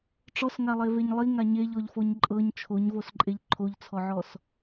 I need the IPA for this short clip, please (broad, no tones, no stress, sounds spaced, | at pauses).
ʈ͡ʂ ɔ s ŋ a lˠ e v e ɲ lˠ i ŋ a ɲ e ʎ ɔ ʎ f o ɲ ǃʼ ɤ ɲ t͡ʃʰ o ɲ v o s ǃʼ e ʎ ǃʰ o ʎ t͡sʰ ɔ ʕ ɔ s